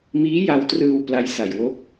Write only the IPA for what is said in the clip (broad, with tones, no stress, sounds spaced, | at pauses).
m iː˦˥ j a˧ w t r ɯː˧ w p l a˦˥ j s a˨˩ j w o˦˥ k̚